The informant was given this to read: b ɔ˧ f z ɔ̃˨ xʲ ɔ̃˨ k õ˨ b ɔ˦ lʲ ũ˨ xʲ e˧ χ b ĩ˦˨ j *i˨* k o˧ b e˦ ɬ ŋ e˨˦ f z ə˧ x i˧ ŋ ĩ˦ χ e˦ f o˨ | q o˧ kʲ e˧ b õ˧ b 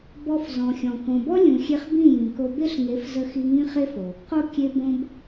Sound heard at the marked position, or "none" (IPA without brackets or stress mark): ĩ˨